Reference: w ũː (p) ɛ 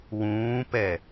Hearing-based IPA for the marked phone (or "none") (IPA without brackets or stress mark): p